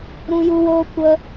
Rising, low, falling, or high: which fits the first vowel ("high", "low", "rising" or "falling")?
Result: high